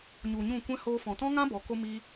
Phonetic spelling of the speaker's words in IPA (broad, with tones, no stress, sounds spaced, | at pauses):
ɲ u˨ ɲ ũ˦˨ kʷ ɛ̃˦ h oː˧ f ɔ̃˨ t ɔ̃˦ ŋ ã˦ b ɔ˨˦ k o˦ m i˦